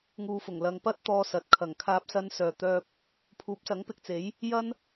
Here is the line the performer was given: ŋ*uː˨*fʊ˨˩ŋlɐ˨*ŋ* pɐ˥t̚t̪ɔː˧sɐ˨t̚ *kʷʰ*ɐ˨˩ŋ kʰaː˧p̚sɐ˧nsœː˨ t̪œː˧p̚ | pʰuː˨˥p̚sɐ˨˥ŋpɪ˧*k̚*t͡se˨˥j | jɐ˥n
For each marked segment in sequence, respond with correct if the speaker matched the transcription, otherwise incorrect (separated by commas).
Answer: correct, correct, incorrect, correct